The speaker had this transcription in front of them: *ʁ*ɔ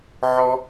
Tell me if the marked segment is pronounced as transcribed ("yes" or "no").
no